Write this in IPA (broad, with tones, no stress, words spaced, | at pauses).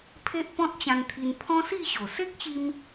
pʰe˦ʔpɔ̃˦t̚t͡ɕã˧nt̪ʰi˧n pʰɔ̃˦si˥˧ɕo˨˩ se˦k̚ɕi˧m